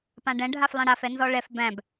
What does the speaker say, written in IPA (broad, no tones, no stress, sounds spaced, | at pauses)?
p ã ɖ ɛ̃ ɖʱ a f lˠ ɛ̃ ɽ a f ɛ n z ɔ ɭ ɛ f b æ̃ b